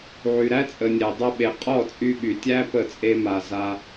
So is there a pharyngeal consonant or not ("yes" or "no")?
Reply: yes